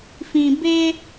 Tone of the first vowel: low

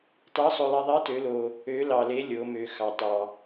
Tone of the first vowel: rising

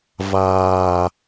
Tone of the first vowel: low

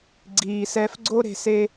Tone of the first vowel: low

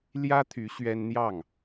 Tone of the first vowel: high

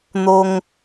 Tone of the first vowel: high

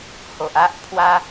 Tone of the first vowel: low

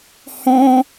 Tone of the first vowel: high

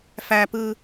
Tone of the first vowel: low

